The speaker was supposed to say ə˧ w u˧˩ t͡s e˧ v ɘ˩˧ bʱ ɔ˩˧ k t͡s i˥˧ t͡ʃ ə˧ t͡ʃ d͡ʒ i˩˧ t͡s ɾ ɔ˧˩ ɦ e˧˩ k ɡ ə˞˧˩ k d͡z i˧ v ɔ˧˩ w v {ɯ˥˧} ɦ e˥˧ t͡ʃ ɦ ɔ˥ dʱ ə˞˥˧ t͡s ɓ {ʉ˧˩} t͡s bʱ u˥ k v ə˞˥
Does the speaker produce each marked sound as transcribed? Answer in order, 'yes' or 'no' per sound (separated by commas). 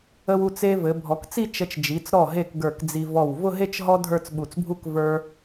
no, no